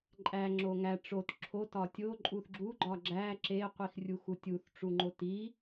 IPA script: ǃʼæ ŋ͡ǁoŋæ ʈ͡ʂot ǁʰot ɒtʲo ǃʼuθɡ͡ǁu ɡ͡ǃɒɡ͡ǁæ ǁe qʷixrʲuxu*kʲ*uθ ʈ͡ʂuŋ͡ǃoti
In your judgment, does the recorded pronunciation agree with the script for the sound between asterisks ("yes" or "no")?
no